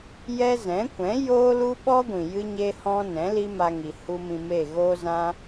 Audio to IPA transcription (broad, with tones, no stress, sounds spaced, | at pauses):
j ɛ˦ z ɛ̃˨˦ kʷ ɛ̃˨˦ j oː˦ l u˦ ɓ ɔ˦ ɡʷ ĩ˨ j ɨ˧ ɲ e˧ h ɔ̃˧ n ɛ̃˨˦ l i˦ m a˧ ŋ i˨ h u˦ m ĩ˧ m e˦˨ ɣ oː˦ z ã˦